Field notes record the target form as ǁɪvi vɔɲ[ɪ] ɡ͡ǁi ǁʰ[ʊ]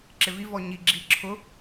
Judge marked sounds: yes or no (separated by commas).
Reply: no, yes